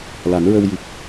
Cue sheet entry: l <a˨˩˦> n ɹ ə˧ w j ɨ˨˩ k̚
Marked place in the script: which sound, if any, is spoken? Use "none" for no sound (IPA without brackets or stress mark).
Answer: a˨˩˦